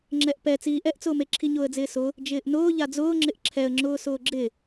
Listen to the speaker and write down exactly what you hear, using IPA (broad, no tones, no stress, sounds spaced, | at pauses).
ŋ͡ǁ ɛ ʔ p ɛ t͡s iː ʔ ɛ ʔ t͡s ʊː m e ǁʰ i ɲ ʊː ə̯ d͡z ɪː s ʊ | d͡ʒ ɪː ʔ n ʊː ʎ a d͡z ʊː ŋ͡ǁ ɪ ʔ ǁʰ ɛ ə̯ ŋ͡ǁ ʊː s ʊː ɡ͡ǁ ɪ